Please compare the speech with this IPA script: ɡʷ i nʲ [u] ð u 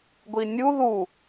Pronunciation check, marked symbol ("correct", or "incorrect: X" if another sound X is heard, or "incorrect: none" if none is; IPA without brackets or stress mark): correct